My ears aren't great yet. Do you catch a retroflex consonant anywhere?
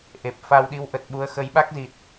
no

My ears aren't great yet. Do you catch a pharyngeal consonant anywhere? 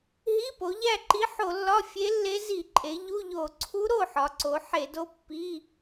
yes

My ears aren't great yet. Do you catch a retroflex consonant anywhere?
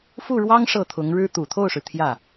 yes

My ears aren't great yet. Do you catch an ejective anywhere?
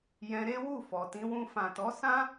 no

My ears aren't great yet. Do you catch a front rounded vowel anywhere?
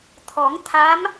no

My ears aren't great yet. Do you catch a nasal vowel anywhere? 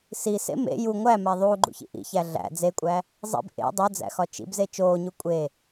no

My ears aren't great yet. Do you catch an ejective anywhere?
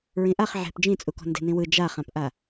yes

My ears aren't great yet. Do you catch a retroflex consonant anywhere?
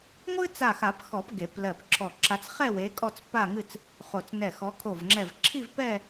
no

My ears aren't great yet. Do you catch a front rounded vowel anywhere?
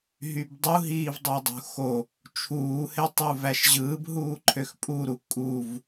yes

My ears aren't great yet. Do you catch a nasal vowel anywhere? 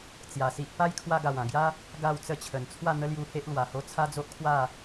yes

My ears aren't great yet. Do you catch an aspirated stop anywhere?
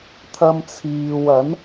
yes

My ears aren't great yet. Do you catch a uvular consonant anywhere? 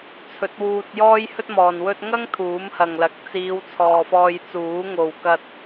no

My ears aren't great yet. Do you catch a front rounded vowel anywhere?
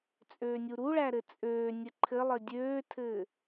yes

